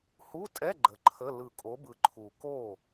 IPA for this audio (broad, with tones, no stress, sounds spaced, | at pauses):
h u˧˥˧ tʼ ɛ˧˥˧ ɡ͡ǃ ə˨˦ ǃʰ ə˧˥˧ l ɯ˨˩ kʼ o˨˦ b ɯ˨˩ ǃʰ u˨˩ k o˥˩